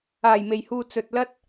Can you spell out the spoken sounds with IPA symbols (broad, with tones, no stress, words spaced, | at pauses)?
aː˨˩jme˨˩jhuː˨ t͡sɵ˨t̚lɐ˥t̚